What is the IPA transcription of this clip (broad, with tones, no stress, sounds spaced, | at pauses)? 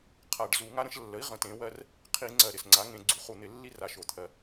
qʰ a˨˩ ɖ z u˧˩˧ ŋ a˦ ɾ ə̃˦ ʃ lː ə˩˥ i̯ ʁ ə̃˩˥ t ẽ˩˥ w ɜ˦ r | qʰ i˧˩˧ ŋ͡ǀ ɜ˨˩ ɾ ɪ˨˩ s ŋ͡ǀ a˩˥ ŋ ẽ˧˩˧ ɡ͡ǀ u˩˥ χ u˨˩ n̪ ɪ˧˩˧ lː i˦ r a˨˩ ʃ o˨˩ t̪ʰ ɜ˨˩